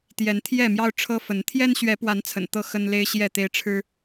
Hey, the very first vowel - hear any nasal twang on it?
no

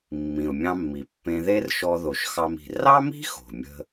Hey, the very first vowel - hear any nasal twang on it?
yes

